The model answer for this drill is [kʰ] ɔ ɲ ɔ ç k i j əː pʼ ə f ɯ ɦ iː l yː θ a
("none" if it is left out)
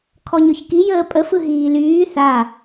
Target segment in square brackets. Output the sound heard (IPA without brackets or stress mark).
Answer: kʰ